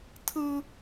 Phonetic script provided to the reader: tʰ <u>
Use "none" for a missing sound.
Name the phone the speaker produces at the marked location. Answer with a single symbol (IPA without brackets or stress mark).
ɯ